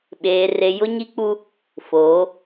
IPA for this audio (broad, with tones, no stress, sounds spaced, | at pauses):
ɓ eː˨ r e˨ j ʊ˦ ɲ i˦ k͡p u˦ | f oː˨˦